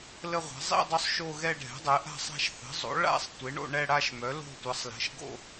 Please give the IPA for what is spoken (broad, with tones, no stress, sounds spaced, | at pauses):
l ə˥˧ ʁʷ a̤˩˥ zˤ ḭ˥˧ dˤ o˥˧ sˤ ʃ o˥˧ ɣ ɛ˥˧ ɖʱ ɛ̤˩˥ dˤ ɛ˩˥ ʔ a̤˥˧ sˤ a̤˥˧ ʃ θ ə̤˩˥ zˤ o̰˩˥ ɭ a̰˥˧ sˤ tʷ e˩˥ ɳ o̰˥˧ ɳ ɛ˥˧ ɽ a˥˧ ʃ m œ˩˥ l o̤˥˧ tʷ ʌ˩˥ sˤ l ɛ̤˩˥ ʃ ɡ o̰˥˧